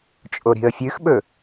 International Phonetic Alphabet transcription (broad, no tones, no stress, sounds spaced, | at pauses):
t͡ʃʼ o ɾ i̤ ə̯ fʲ ʉ x ɓ ɵ